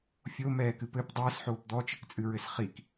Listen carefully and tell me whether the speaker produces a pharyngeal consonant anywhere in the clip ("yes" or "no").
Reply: yes